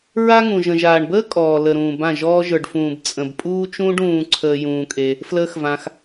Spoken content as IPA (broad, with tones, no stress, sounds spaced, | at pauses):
ɹ a˦ ŋ ũ˨ ʒ ə̃˨ ʒ aː˨ ɳ b əː˦ kʼ ɔː˨ l ə˨ ɾ ũː˨ b ã˦˨ ʒ ɔː˧ ʒ ə˞˨ ɖ f ũː˨ b t͡sʼ ə̃˨ b pʼ uː˦ t͡ʃ ũː˦ ɖ ũː˧ ǀʰ əː˧ j ũː˧ kʼ e˧ | f l əː˦ x v ã˧ x